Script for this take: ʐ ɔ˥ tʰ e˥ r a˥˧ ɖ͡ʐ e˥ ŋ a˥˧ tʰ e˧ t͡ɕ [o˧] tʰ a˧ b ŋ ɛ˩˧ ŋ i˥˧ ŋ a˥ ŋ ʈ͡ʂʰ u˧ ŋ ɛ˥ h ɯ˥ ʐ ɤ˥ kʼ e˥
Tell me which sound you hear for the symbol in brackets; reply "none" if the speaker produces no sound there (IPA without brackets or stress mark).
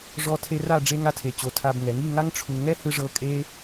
o˧